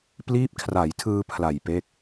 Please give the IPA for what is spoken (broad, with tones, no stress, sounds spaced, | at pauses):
p l iː˦˥ p̚ kʰ r a˩˦ j tʰ ɯː˧ pʰ l a˨˩ j p e˦˥ k̚